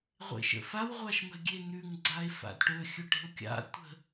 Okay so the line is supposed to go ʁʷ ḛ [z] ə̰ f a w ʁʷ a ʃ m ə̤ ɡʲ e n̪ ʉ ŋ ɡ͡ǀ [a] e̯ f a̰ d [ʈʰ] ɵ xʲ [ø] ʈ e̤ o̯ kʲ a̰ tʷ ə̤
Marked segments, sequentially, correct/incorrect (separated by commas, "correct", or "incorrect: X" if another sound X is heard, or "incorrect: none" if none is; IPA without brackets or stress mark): incorrect: ʃ, correct, incorrect: ʈ, incorrect: ɵ